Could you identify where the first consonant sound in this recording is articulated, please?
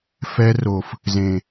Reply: labial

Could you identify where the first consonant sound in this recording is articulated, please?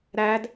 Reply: alveolar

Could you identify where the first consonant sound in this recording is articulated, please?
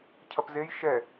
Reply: palatal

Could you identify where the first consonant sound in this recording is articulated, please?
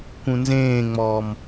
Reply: velar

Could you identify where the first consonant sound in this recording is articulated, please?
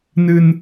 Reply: alveolar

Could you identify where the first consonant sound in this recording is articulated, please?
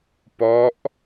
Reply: labial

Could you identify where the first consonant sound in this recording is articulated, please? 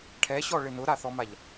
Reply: retroflex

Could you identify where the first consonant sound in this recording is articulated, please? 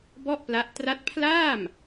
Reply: labial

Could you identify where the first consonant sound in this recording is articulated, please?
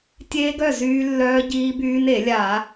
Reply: alveolar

